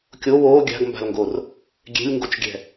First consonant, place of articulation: velar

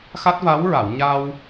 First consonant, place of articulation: velar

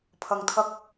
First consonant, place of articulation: labial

